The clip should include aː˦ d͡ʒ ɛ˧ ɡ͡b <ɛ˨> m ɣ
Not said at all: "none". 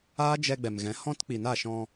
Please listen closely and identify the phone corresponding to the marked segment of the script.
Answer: ɛ˨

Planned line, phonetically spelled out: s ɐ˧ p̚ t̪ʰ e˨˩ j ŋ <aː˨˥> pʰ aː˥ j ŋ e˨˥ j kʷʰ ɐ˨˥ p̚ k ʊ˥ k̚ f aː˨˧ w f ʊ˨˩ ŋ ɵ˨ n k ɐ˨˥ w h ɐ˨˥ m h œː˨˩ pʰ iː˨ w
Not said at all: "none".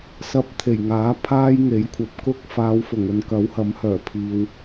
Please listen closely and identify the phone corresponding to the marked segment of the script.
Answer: aː˨˥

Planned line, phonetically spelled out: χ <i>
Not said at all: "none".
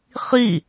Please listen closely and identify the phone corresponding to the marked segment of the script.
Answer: i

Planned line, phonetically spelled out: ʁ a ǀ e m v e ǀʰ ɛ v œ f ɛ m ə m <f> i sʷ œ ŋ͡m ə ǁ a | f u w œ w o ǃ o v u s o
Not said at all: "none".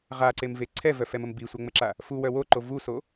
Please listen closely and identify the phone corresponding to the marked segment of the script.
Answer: b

